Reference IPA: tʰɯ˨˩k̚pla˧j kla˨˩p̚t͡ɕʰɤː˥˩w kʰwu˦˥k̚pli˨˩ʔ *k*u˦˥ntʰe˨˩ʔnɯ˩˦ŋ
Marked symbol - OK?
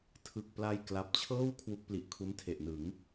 no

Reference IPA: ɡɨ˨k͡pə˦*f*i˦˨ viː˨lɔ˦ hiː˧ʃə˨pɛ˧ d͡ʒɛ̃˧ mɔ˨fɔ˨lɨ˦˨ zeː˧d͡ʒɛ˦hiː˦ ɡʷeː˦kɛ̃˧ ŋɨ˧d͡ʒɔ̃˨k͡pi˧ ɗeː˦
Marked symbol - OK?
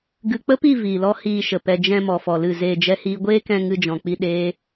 no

